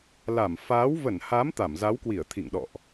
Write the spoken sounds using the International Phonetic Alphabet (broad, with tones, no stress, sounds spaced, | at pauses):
l a˧˩ m f aː˨˦ w v ə˧˩ n h a˨˦ m t̪ a˧˩ m z a˨˦ w k w i˧˩ ə̯ t̪ʰ ḭ˧˨ ŋ ɗ ɔ̰˧˨ ʔ